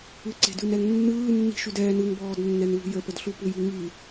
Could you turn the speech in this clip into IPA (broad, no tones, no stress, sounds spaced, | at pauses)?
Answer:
ɯ ǀ e̤ d ʉ n ɛ ŋ nː ɯː nː i̤ ʃ ʉ d ɛː n ɯ ŋ b ɔː d nː ɛ n l ṳ j ə p ə d ɬ u p u j i ŋ i